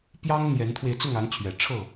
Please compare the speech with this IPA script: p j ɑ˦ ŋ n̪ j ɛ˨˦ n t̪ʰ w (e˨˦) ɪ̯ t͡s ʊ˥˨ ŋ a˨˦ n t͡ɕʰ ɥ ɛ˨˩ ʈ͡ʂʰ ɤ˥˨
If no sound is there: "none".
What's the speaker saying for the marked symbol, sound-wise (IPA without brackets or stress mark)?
e˧